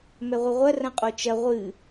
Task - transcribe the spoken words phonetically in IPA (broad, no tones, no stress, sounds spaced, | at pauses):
m ɛ ʁʷ ɨ ʁʷ ɐ r ɐ̃ qʼ o t͡ʃ ɐ ʁʷ ɨ